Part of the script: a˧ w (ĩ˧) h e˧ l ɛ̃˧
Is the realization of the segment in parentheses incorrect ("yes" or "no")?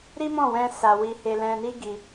yes